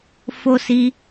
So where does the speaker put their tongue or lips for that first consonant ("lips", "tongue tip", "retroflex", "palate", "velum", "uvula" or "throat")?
lips